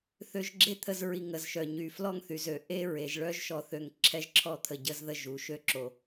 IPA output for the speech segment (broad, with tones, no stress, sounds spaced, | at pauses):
θ ø˧ ʒ ɡ͡ǁ e˦ t̪ʰ ə˧ z ɹ i˨ ŋ ə˨ z ʃ œ˨ ɲ y˨ f l ɔ˦ ŋ θ y˨ z ø˨ ʔ e˦ ɹ e˨ ʒ ɭ œ˦ ʒ ʃ ɔ˧ θ ø˧ ŋ ǁʰ ɛ˦ ʒ ǁʰ ɔ˦ t̪ʰ ə˧ ɟ ə˦ z ð ə˦ ʒ u˨˦ ʃ ø˦ ǁ o˧